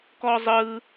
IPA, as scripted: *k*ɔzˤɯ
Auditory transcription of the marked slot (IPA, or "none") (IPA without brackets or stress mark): k